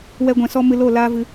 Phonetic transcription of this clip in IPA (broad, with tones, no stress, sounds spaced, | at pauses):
w ɛ˦ ɡʷ ɛ̃˧ s ɔ˦ m ɨ˧ l o˦˨ l aː˦ v ɨ˧